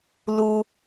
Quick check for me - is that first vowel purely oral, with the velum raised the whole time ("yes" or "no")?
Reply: yes